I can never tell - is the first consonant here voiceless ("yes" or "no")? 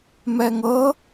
no